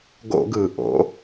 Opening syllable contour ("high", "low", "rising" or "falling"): high